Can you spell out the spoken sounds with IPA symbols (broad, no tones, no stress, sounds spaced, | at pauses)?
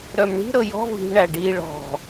ɾ œ m ɳ i̤ ɾ ɤ j ɔ̤ v i̤ ɳ æ ɖ i ɭ ɔ̤